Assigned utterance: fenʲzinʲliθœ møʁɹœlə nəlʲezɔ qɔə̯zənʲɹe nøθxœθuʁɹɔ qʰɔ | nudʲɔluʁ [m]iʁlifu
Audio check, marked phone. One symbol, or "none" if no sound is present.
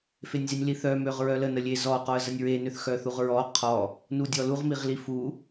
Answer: m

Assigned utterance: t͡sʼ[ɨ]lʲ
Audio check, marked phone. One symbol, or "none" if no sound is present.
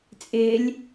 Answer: ɪ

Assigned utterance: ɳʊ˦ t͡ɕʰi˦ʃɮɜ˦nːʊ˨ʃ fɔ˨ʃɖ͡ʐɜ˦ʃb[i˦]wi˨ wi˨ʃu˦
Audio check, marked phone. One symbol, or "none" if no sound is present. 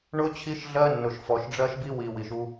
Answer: i˦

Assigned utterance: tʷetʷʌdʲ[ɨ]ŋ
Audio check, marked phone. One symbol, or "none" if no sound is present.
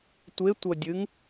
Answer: ɨ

